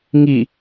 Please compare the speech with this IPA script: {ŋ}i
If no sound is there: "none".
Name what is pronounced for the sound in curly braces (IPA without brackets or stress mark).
ŋ